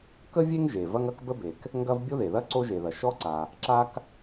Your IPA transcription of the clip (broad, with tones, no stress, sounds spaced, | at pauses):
k ə˥ vʲ e˥ ŋ ʒ e˩ v ɐ˥ ŋ ɐ˥ k b ə˥ b e˩ k | ŋ ɡ ɐ˥ v bʲ o˥ ð e˩ ð ɐ˥ ǀ o˥ ʒ e˩ ð ɐ˩ ʃ ɔ˥ ǀ a˩ | ǁ a˥ k